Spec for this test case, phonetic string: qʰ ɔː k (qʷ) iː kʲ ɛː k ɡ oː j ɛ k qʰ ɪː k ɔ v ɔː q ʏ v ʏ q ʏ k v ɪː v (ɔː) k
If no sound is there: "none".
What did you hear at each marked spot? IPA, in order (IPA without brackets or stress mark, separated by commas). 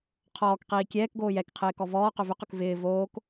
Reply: q, oː